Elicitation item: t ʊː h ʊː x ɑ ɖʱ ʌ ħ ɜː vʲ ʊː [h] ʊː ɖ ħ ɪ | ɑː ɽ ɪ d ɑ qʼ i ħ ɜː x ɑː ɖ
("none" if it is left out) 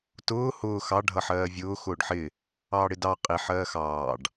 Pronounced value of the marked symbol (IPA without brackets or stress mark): x